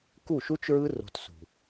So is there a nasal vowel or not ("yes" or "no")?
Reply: no